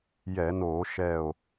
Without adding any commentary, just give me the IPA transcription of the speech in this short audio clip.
j ɛ˧˩˧ n oː˧˩˧ ʃ ɛ˧˩ o̯

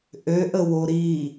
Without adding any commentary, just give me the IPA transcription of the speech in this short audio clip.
ʔ ø ʔ ə w o ɾ i

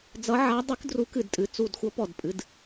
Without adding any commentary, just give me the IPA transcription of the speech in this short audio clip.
d͡z ʌ˧˥ ʕ a˧˥ dˤ ɨ˧˥ k d r u˧˥ k ɨ˦˨ d tʼ ɨ˦˨ t͡s u˦˨ d xʷ ʌ˧˥ p ɔ˦˨ d pʼ ɨ˧˥ d

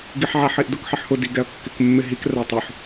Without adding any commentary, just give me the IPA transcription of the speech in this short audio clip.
ɡ i ħ ʕ a ħ i ʔ d ʊ k ħ ɪ ħ h ʊ d i ɡ ɛ ɐ̯ kː ɪ k mː ɪ ɦ i k r a tˤ ʊ ħ

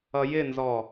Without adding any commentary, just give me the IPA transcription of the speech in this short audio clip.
ʌ j ɪ n z ɔ

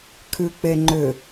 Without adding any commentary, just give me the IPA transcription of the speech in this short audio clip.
kʰ ʉ k͡p e ŋ͡ǃ ʏ

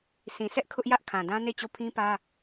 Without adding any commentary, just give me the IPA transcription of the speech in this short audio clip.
sʰ ĩ˨ sʰ ɛ˦ ʔ kʰ ʊ˦ ʔ j ä˦ ʔ kʰ ã˨ d ã˦ n e˦˨ t͡ɕ o˦˨ pʰ ĩ˦ p ä˦

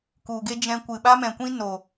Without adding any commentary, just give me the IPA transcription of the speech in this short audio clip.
k u˨ ɡ e˦ d͡ʒ ɛ̃˧ kʷ ɨ˨ ɓ a˦ m ɛ̃˨ kʷ ĩ˦ n o˨

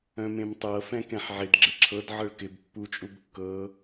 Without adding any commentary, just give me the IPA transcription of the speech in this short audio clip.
œ̃ m ẽ m tˤ ɤ f ɛ̃ k ɛ̃ ħ ʕ ɪ d ɡ͡ǁ ɪ ǁʰ ɤ d ʕ ɤ ɭ k ɪ b pː u t͡ʃʼ u b kː ɤ

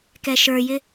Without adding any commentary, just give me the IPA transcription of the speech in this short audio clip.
k ɛ ʃ ə˞ j ɪ

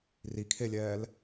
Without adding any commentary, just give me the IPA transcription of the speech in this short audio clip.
r i kʰ e lʲ ɛː l

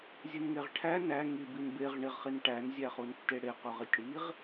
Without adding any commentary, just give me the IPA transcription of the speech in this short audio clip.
zʲ ɨ n ŋ e ʁ ʈʰ æ n æ ŋ i b i n b e ʁ ɳ i ʁ χ i n ʈ æ n zʲ æ χ u n tː e ɽ e q u ʁ i tʲ ɽ i ʁ

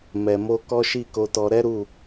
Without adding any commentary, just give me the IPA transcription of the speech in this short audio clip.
m ɛ˨ m o˧ k ɔ˦ ʃ i˦˨ k o˧ t ɔ˧ ɾ ɛ˦ ɾ u˦˨

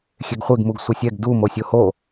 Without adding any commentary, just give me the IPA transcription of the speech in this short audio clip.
xʲ e ɡ χʷ e ɡ m u ɡ sʷ e sʲ ɛ ɡ d u m o sʲ o h o

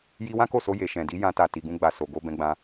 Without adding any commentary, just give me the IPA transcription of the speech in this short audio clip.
j i˧ w ã˦ k o˦˨ s o˧ j e˨ ʃ ɛ̃˨ d i˨˦ j ã˧ t a˨ t i˨ ɡ ũ˧ ɡ͡b a˨ s o˨ ɡ o˧ b ɛ̃˧ ɡ͡b ã˧

